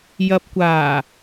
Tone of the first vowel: low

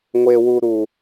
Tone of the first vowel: high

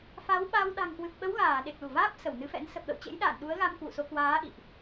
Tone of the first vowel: rising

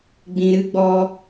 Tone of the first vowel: low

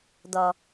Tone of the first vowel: low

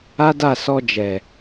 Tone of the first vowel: high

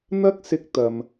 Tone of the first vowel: high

